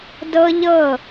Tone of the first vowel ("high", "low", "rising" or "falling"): high